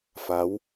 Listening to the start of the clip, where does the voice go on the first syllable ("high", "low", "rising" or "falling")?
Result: rising